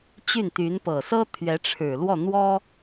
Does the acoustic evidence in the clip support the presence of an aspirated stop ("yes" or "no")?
yes